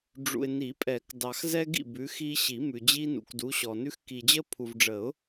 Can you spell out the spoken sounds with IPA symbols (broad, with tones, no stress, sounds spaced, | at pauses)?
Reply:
ɖ͡ʐ ṵ˨ ɪ̯ n i˨˩˦ pʼ ɛ˨˩˦ k d ɑ˨ x z ɛ˦ ɡ ḭ˥˨ b ʉ˨˦ x i˦ ɕ i˨˩˦ m ʉ˨ d͡ʑ i˦ n ṵ˨ k d u˨˦ ɕ ɔ˨ n ʉ˦ x k i˨ d͡ʑ ə˦ pʰ u˨ v ɖ͡ʐ ə˨˩˦ ʊ̯